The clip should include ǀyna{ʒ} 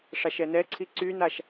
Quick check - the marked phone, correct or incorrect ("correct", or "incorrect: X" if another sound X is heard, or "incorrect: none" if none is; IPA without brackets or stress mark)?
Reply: incorrect: ʃ